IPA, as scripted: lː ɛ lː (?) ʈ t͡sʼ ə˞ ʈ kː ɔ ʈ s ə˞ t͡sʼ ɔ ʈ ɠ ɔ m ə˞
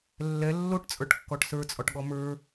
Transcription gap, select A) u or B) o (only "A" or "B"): B